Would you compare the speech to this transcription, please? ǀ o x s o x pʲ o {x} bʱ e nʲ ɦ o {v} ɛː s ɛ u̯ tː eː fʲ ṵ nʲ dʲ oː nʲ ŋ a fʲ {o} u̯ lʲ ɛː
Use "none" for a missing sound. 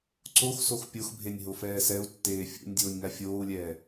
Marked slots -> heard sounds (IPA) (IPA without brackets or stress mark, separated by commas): x, f, oː